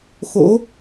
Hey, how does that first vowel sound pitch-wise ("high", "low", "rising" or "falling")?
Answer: rising